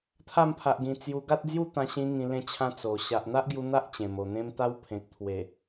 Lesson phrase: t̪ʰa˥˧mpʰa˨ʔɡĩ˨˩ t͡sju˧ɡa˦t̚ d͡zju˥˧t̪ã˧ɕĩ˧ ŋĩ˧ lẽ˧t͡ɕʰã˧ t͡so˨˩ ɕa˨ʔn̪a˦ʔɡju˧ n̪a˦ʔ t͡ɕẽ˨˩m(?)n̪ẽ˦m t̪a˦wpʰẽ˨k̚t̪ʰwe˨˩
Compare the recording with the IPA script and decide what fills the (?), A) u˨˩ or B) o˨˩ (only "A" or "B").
B